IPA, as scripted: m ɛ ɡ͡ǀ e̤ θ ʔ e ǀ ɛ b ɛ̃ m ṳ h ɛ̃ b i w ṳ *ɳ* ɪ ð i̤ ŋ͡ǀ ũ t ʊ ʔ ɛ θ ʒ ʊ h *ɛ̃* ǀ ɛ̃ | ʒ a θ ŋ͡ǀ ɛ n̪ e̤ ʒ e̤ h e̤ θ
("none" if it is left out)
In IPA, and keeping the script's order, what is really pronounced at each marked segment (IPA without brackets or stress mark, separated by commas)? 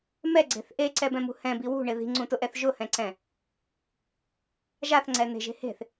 ɳ, ɛ̃